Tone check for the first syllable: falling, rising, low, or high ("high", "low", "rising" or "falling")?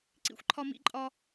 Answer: high